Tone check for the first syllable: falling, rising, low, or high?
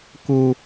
high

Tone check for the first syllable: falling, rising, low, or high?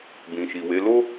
low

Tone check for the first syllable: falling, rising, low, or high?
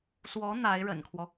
rising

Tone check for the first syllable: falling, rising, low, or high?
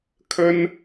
high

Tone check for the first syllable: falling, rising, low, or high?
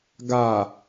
low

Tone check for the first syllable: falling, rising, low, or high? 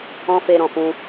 high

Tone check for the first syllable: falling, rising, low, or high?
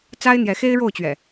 high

